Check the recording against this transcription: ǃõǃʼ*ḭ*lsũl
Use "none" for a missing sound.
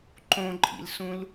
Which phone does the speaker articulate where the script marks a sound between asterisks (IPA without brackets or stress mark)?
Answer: ḭ